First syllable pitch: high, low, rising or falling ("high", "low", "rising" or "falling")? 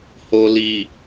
low